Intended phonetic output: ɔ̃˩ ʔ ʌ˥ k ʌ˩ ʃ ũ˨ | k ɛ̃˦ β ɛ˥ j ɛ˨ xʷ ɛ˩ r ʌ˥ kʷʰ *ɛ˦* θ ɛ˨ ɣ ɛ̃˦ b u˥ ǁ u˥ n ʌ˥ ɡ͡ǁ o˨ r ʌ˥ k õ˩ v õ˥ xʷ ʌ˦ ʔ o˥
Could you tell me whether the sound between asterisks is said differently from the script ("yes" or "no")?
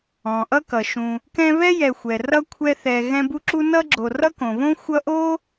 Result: no